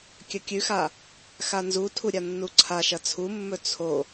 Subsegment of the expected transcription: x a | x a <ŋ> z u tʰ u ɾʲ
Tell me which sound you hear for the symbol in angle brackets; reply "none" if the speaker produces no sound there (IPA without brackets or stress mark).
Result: n